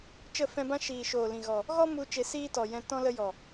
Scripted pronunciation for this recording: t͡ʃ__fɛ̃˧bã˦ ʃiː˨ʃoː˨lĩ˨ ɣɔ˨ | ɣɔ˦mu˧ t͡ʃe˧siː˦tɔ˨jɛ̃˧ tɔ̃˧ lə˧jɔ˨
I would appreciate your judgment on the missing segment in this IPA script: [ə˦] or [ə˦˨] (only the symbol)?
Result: ə˦˨